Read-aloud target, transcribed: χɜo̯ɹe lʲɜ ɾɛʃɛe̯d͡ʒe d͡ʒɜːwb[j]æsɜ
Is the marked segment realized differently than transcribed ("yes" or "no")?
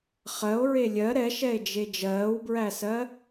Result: yes